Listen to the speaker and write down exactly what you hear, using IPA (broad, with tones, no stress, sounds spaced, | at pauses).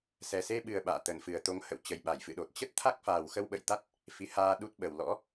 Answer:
s ɛ˨˩ s e˧ ɓ ɨ˨˩ ə̯ ɓ a̰ː˧˨ t̪ ə˧˩ n f ɨ˨˩ ə̯ t̪ o˨˦ ŋ h ə̰˧˨ w t͡ɕ ə˨˩ j ɓ a˧˩ j f ɨ̰˧˨ ɗ o˨˩ t̚ t͡ɕ ə˦˥ t̚ t̪ʰ a˦˥ k̚ f aː˨˩ w x ə˧ w ɓ ə̰˧˨ j t̪ a˦˥ t̚ | f i˨˦ h aː˧ ɗ u˦˥ t̚ ɓ ə˨˩ w l ɔ̰˧˥